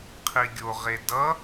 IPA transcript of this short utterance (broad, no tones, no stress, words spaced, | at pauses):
qʰiɡʲoʁe dʌ